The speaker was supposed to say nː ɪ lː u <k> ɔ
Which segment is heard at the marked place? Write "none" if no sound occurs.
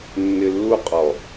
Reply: qʼ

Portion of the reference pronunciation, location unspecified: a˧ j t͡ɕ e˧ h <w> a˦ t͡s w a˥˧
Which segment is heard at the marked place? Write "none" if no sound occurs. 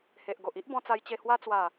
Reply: w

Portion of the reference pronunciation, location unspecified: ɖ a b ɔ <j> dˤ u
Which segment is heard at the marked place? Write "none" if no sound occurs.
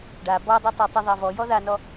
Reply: none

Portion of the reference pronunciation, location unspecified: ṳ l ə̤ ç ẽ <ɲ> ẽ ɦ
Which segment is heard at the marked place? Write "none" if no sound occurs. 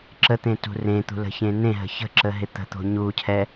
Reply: n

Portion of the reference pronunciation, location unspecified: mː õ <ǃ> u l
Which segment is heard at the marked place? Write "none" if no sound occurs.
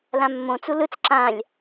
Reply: t͡s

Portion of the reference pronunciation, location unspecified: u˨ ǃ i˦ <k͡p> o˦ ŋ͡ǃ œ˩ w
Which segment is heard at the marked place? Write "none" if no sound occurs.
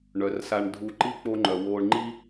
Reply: k͡p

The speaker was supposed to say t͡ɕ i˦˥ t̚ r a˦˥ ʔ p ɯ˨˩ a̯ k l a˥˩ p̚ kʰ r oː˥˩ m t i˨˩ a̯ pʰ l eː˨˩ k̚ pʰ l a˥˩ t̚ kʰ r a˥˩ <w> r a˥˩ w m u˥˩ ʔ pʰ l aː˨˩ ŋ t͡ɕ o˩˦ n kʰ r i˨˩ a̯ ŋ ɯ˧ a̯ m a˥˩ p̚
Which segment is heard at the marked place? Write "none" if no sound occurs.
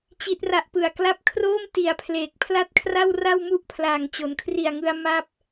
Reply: w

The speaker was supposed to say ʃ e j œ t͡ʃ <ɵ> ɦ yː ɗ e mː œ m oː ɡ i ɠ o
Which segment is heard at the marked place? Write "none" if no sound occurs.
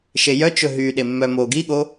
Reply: ɵ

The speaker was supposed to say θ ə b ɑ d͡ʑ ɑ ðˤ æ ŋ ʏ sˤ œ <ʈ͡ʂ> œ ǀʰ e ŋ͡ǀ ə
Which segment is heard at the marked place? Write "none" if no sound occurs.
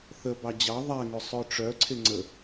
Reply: ʈ͡ʂ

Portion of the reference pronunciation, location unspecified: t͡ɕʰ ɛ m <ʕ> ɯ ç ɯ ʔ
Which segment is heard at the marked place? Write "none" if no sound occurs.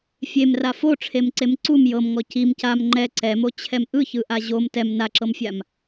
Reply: ʔ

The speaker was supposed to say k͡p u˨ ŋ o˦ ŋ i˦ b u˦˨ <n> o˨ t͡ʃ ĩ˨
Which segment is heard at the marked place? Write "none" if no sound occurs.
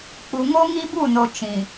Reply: n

